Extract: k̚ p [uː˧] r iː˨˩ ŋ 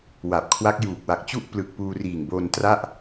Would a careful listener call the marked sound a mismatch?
no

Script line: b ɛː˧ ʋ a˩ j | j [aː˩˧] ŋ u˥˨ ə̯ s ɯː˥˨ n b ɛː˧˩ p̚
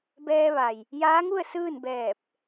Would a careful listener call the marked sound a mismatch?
yes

